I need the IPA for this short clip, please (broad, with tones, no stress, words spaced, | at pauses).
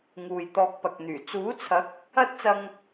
ŋuː˨jt̪ɔː˧k̚pɐ˨k̚n̪yː˨˩ t͡suː˨˥t͡sʰɐ˨˥k̚ | ɐ˥t̚t͡sɐ˧ŋ